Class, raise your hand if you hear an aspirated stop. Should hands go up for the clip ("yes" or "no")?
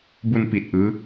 no